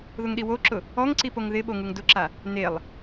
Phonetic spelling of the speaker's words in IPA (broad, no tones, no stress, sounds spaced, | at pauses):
ð ʊ ŋ ɗ i w o ǁ ʊ | ɔ ŋ ǀ i p o ŋ ð ɪ ɓ o ŋ u ŋ d ʊ ǁ a | n e lˠ